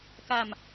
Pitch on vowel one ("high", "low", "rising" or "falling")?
low